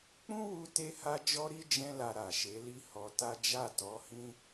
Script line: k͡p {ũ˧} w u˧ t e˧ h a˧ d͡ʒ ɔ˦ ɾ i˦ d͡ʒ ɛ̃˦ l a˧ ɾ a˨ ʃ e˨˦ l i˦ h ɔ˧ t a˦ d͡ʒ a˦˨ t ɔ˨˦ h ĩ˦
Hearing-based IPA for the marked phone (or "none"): ũ˦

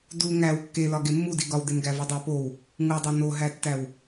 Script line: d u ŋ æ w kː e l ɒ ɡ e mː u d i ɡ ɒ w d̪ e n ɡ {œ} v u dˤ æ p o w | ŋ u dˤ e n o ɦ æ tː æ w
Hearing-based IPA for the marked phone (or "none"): æ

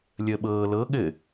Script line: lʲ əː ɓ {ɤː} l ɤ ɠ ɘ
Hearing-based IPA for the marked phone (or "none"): ɤː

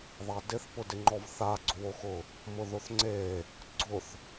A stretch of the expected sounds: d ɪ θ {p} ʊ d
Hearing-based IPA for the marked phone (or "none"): p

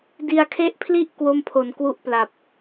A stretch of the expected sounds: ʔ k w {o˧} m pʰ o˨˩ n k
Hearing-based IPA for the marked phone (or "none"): o˥˩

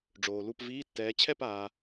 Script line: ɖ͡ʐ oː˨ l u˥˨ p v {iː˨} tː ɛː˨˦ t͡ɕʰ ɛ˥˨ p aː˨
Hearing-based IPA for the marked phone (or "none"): iː˧˥˧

